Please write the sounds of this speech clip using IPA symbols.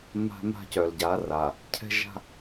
ma̤˦ma̤˦ cœ˨lɟa˨˦ra˨ | cʰɛ̤˦ʒa̤˦

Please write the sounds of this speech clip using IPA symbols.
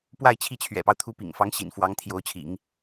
pwa˥˧ɪ̯t͡ɕʰi˥˩t͡ɕʰɥɛ̰˨˩pɑ˦ʊ̯ t̪ʰu˧˥pḭ˨˩ŋfɑ˧˥ŋ ɕḭ˨˩nfwɑ˧˥ŋt̪ʰjo˧˥ʊ̯t͡ɕʰḭ˨˩˦ŋ

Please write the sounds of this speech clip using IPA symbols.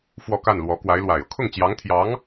fwɔ˥˧ka˥˩nlwɔ˧˥ kwa˧˥ɪ̯lwa˨˩ɪ̯ɤ˦ kʰʊ˥˩ŋt͡ɕjɑ˧˥ŋt̪ʰjɑ˧˥ŋ

